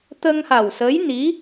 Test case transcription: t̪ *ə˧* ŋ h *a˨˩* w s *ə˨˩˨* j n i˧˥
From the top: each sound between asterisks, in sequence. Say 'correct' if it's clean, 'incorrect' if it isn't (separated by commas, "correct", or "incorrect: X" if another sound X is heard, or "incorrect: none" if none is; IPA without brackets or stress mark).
correct, correct, incorrect: ə˧˥